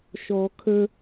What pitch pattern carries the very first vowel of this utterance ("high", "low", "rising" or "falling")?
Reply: low